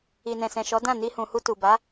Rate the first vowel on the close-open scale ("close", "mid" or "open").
close